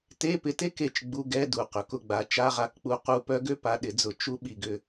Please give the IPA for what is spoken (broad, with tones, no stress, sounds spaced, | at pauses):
t e˧˥˧ p ɪ˨˦ t e˥ k e˦˨ t͡ʃ ɡ͡b u˧˥˧ ɡ ɛ˧˥˧ d u˨˩ q œ˨˩ k ʊ˦˨ ɡ͡b a˨˦ t͡ʃ a˧˥˧ ʁ a˦˨ k k͡p u˦˨ q u˦˨ p œ˥ ɡ ø˥ p a˨˦ ɗ ɪ˨˩˦ d͡z ʊ˨˩˦ t͡ʃ u˥ ɓ i˨˩ ɡ ʏ˦˨